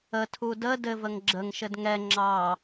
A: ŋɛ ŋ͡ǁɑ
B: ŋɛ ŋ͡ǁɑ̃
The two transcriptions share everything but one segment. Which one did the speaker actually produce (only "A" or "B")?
A